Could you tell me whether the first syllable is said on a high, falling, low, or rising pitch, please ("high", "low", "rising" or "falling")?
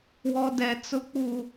high